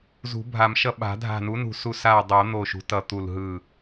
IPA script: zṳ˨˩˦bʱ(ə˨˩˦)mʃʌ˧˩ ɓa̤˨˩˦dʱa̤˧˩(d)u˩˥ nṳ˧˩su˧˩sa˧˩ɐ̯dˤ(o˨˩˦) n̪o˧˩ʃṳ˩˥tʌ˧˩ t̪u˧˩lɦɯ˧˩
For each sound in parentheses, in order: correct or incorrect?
incorrect, incorrect, correct

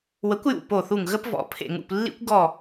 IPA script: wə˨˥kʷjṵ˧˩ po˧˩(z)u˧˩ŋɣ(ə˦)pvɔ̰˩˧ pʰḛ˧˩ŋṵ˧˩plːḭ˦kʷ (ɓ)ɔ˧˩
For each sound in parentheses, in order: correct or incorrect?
incorrect, correct, incorrect

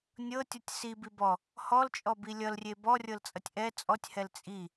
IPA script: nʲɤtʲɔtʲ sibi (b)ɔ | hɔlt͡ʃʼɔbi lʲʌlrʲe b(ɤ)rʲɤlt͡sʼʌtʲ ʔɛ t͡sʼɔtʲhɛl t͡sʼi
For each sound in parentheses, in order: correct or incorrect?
correct, incorrect

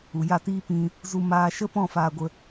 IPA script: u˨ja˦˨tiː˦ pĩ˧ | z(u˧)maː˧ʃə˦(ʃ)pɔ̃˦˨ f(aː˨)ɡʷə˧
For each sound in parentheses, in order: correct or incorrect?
correct, incorrect, incorrect

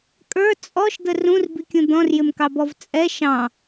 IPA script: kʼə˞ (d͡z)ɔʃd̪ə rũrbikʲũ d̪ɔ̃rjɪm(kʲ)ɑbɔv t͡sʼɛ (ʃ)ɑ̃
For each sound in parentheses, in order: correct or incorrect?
incorrect, incorrect, correct

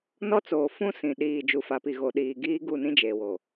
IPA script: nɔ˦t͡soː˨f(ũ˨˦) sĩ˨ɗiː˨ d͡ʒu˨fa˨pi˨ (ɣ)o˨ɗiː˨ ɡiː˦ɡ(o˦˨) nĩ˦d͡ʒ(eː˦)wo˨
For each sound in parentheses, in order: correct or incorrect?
incorrect, correct, incorrect, incorrect

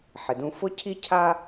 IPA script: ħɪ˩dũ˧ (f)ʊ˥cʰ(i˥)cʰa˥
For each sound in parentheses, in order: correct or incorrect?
correct, correct

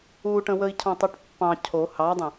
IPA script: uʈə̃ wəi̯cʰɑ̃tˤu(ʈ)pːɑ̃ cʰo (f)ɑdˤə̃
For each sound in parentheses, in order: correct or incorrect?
correct, incorrect

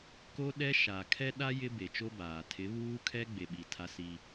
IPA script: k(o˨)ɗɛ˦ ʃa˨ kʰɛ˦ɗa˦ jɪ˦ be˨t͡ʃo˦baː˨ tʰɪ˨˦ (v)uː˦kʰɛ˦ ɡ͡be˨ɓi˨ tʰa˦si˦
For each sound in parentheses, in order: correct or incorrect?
incorrect, incorrect

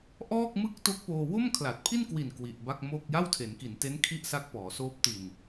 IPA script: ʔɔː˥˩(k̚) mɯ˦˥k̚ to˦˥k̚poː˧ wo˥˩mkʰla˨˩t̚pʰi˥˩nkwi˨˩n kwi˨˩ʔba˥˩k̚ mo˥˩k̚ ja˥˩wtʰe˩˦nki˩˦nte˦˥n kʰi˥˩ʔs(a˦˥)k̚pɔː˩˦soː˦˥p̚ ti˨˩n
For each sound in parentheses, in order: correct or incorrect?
correct, correct

